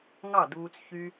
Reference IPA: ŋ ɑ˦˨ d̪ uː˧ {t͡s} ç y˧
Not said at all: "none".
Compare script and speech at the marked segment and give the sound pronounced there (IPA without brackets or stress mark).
t͡s